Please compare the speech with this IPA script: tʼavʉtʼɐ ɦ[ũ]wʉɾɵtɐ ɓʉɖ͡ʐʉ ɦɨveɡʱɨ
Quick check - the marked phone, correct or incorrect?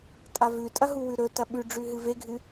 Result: incorrect